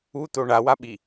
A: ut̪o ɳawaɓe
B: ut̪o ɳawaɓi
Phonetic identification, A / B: B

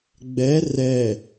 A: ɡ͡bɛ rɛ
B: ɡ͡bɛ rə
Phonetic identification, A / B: A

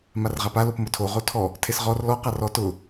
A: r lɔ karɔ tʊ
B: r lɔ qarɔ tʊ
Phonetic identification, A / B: B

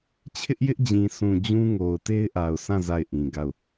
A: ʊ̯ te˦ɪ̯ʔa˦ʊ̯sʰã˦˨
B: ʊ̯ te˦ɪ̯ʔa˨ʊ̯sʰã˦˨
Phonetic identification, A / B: B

